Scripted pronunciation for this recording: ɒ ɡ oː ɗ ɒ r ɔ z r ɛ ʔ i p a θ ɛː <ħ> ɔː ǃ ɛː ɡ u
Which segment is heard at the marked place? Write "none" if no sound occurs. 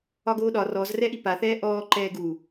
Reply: ʔ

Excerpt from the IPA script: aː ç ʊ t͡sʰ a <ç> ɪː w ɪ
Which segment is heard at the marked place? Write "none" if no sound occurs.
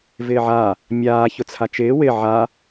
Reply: t͡ʃ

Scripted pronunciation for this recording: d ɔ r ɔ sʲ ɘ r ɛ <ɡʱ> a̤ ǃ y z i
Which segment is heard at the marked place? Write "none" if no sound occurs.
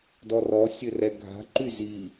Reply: ɡʱ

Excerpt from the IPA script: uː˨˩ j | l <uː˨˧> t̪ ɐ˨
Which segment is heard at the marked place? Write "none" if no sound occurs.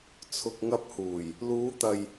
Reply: uː˨˧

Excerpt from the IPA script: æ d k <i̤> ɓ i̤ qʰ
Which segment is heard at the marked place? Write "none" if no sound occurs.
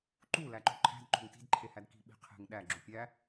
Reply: i̤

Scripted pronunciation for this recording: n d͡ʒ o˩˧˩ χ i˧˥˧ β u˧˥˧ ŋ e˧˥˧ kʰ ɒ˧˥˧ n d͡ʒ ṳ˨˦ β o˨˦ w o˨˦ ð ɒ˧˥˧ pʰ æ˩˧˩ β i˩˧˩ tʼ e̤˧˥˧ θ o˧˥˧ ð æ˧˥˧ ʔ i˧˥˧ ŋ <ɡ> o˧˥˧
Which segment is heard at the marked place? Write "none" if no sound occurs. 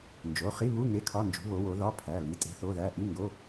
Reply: ɡ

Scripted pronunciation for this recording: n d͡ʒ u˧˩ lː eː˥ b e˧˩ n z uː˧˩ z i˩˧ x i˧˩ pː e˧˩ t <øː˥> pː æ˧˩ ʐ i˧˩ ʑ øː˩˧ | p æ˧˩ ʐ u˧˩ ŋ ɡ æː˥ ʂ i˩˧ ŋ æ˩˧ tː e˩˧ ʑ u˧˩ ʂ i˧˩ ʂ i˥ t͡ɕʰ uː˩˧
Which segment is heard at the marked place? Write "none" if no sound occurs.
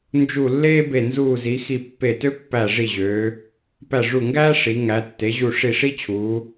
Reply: ø˥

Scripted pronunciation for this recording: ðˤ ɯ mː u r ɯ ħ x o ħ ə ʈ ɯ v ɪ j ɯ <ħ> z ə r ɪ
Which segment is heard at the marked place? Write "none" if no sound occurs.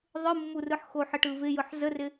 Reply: ħ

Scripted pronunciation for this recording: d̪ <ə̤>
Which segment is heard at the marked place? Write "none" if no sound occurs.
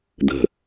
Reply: ə̤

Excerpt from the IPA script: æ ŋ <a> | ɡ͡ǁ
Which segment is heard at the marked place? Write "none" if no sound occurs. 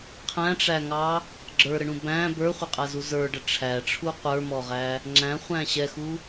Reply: ɑ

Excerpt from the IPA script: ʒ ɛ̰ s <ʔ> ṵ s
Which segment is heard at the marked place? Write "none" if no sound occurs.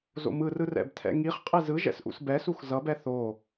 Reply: ʔ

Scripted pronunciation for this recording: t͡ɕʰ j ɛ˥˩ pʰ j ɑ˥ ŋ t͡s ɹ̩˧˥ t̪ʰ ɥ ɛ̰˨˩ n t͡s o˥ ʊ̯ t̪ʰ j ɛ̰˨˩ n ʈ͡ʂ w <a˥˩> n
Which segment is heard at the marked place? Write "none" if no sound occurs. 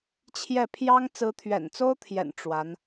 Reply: a˧˥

